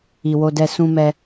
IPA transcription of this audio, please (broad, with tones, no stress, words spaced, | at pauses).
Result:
i˨wo˧dɛ˧ sũ˦mɛ˦